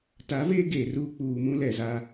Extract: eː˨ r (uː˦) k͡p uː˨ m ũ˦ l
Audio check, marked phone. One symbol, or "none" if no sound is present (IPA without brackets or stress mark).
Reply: uː˦